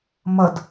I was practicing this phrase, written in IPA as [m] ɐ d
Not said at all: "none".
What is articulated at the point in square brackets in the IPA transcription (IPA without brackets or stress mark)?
m